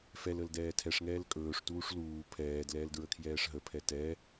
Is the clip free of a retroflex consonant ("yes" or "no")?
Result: no